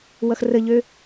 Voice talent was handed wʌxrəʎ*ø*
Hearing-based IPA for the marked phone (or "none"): ø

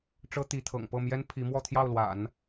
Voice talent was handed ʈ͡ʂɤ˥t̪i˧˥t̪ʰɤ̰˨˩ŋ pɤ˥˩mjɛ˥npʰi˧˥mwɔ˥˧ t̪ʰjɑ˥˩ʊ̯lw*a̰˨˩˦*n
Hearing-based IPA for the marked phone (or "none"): a̰˨˩˦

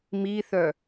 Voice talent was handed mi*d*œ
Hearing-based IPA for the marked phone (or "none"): θ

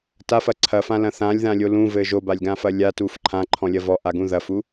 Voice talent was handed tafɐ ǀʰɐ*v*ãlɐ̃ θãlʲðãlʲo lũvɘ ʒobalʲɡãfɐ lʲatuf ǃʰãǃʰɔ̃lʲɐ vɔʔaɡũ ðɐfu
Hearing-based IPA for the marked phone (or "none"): f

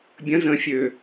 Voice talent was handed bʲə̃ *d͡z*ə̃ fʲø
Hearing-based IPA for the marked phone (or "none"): z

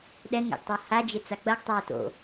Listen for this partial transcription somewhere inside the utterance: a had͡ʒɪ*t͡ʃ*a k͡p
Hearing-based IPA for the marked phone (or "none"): t͡s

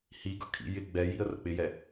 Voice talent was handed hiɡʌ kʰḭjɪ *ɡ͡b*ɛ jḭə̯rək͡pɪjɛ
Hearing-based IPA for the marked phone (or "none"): ɡ͡b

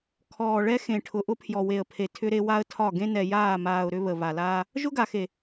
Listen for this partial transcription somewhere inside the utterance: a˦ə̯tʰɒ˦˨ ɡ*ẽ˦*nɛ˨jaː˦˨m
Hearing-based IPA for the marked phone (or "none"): ẽ˦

